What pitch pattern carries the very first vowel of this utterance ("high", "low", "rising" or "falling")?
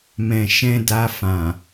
low